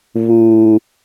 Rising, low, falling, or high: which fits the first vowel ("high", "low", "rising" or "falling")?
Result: high